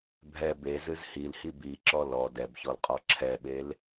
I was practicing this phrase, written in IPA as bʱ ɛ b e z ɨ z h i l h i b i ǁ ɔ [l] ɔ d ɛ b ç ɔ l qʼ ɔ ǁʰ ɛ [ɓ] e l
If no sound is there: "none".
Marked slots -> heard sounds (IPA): l, ɓ

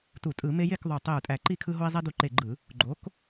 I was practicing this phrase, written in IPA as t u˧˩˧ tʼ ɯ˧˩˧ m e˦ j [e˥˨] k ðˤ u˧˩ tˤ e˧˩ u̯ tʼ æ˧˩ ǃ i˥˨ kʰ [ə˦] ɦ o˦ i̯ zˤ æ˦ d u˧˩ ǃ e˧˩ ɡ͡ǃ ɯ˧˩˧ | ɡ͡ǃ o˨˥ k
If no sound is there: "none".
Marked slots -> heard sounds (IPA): e˥˨, ɯ˦

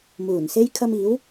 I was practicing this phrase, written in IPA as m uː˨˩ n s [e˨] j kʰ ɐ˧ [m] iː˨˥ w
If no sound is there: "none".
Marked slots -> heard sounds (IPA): e˥, m

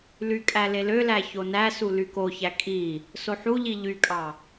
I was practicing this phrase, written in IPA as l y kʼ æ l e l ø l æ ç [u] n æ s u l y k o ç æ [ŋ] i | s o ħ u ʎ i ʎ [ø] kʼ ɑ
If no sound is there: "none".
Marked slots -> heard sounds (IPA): o, kʼ, y

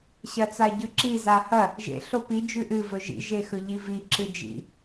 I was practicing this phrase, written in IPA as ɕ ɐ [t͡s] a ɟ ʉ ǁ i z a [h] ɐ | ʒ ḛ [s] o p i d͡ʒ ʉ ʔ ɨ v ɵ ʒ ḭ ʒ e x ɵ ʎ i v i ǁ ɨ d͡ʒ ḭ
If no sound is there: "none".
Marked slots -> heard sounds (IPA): t͡s, h, ɬ

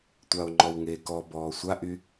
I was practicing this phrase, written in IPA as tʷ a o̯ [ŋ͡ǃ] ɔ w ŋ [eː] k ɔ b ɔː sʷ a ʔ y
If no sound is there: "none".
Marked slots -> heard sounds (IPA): ŋ͡ǃ, eː

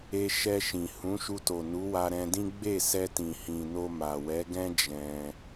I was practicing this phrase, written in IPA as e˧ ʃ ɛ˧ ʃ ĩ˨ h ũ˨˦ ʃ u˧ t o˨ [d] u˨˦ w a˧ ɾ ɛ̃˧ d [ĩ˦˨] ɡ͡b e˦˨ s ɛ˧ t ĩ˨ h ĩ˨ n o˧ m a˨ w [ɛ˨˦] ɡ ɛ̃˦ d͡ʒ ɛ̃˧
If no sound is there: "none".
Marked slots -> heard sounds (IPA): n, ĩ˦, ɛ˨˦

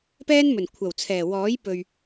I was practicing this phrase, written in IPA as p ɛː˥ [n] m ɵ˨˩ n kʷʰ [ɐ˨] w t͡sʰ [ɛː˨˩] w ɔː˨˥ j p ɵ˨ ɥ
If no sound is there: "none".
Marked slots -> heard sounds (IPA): n, ɐ˨˩, ɛː˨˩

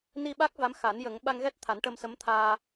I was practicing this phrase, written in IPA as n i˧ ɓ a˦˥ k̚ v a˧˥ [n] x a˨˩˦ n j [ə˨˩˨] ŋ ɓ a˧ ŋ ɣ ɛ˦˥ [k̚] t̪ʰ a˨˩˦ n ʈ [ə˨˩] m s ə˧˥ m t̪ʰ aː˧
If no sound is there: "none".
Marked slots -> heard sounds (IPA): m, ə˨˩˦, t̚, ə˧

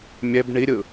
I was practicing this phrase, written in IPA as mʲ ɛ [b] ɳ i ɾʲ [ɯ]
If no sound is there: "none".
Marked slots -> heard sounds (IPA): b, ɯ

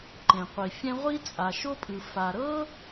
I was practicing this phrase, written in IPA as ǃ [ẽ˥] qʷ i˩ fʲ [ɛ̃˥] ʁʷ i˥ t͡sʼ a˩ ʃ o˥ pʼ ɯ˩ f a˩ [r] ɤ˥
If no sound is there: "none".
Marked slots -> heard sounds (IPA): ẽ˩, ɛ̃˥, ɾ

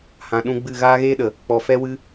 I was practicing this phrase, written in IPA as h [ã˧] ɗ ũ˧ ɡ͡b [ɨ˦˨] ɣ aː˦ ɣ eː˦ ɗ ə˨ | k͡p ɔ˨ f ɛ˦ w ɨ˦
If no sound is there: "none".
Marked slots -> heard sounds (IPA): ã˨, ɨ˦˨

